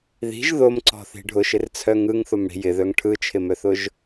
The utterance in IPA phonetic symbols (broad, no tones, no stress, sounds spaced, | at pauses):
ð i̤ ʒ ð o m ǀ ɔ̤ θ i̤ ɖʱ ʊ ʃ ɪ r t͡sʰ œ ŋ ɯ ŋ θ o m ɽ i̤ j ɪ ð œ ŋ ʈʰ ɯ t͡ʃʰ ɪ m œ θ ʊ ʒ